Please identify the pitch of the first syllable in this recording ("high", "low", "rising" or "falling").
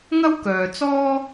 high